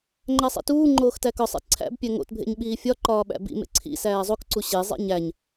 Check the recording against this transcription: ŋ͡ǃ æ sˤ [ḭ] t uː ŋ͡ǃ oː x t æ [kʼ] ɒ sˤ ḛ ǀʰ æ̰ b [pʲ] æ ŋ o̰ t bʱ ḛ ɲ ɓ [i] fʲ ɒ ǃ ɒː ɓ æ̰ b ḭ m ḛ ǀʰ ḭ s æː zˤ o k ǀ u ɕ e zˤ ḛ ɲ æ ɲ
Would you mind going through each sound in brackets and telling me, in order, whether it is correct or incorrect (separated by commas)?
correct, incorrect, correct, incorrect